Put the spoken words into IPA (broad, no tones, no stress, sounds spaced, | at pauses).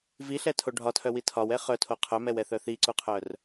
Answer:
v i ɬ ɛ tʰ o ɖʱ ɒ tʰ œ w i tʰ ɒ w ɛ χ œ tʰ o qʰ œ m ɛ w ɛ θ œ θ i ǀ u qʰ œ r